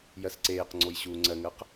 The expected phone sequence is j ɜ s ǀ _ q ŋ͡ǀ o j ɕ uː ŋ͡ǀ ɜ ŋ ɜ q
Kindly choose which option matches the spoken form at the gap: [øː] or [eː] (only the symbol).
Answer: eː